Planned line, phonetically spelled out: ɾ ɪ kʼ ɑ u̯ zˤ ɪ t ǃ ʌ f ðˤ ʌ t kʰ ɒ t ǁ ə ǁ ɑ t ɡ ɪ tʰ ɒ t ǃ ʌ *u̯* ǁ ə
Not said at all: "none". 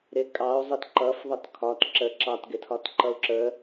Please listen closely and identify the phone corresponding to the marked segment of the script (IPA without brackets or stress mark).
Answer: u̯